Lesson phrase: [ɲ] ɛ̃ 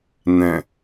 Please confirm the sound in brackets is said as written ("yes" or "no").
no